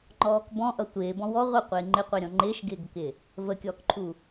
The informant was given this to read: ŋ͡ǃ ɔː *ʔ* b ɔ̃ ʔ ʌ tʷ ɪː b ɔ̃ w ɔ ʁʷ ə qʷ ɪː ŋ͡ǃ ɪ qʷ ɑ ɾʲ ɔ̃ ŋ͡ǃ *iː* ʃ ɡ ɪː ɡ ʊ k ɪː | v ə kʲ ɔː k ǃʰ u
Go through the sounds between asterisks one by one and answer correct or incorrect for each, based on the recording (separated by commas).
incorrect, incorrect